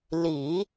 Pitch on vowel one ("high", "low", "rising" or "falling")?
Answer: low